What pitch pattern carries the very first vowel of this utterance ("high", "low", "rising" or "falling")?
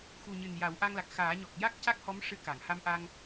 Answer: low